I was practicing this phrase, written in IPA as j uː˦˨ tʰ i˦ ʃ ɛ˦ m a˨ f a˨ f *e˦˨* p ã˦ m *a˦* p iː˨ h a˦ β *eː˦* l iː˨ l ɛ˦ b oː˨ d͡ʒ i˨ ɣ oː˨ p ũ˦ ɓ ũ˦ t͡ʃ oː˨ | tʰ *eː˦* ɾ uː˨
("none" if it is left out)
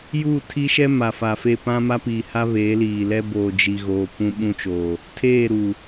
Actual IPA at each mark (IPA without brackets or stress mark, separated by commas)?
e˦˨, a˦, eː˨˦, eː˦˨